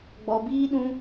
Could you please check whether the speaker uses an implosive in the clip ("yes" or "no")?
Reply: yes